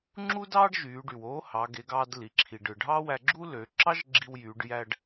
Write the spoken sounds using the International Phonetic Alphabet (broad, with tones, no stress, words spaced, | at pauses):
ŋ͡ǁu˥dɑː˥ɖ ʒyː˩˧ ɖy˩woː˧˥ hɑ˩˧ɡe˩˧ɡɑː˧d li˩ǁʰi˩ɖɯ˩ ɖʱɑ˥wæ˧ɡ͡ǁu˥ lø˩˧ ǁɑ˥ʒ ɡ͡ǁi˧wjyː˩˧ɖ jæ˧ɖ